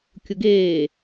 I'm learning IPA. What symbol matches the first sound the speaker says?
kʲ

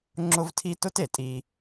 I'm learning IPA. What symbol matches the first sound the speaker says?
ŋ͡ǁ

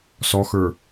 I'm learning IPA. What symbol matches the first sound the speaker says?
s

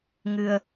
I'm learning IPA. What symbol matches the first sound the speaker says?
ŋ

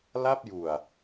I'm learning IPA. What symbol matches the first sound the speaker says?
l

